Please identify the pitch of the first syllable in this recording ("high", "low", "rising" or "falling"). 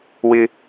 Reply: high